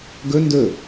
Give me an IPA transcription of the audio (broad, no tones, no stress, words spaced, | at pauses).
ɡɵ ndɵ